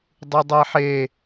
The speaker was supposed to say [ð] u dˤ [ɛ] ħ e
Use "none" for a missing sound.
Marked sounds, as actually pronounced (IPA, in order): dˤ, ɛ

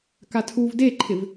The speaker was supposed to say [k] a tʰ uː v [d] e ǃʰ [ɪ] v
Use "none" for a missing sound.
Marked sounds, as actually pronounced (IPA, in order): k, d, ɪ

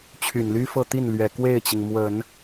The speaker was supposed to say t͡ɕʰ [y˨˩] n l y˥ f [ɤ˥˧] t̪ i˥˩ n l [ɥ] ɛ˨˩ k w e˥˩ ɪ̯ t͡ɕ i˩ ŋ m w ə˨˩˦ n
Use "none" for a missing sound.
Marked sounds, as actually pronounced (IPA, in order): y˨˩, ɤ˥˧, ɥ

